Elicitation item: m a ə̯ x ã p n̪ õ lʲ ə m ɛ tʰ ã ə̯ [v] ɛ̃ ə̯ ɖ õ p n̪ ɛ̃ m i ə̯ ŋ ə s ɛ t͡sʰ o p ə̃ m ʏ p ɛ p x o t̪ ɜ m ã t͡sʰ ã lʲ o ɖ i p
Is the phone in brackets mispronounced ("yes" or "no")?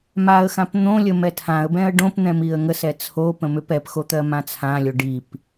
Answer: yes